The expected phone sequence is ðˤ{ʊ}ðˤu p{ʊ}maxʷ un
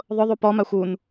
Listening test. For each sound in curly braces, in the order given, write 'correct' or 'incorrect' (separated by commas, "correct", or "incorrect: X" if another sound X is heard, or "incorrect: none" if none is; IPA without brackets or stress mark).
correct, incorrect: ɔ